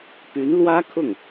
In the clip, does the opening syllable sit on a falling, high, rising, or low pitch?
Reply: rising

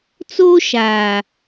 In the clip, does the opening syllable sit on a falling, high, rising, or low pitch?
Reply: high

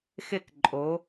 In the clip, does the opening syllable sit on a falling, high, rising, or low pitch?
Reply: falling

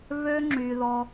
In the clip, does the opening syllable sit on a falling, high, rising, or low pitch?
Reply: high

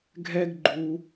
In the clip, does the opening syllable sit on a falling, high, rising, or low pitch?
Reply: high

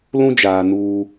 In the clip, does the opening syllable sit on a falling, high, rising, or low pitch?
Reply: high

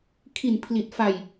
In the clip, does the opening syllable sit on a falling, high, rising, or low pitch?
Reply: low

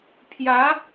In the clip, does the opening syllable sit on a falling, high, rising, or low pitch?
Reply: rising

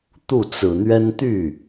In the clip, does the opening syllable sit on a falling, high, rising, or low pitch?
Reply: falling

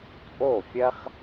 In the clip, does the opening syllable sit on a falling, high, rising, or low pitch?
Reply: falling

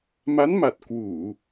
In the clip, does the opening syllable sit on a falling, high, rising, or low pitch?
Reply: rising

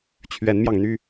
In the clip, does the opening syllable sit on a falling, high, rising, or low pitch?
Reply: rising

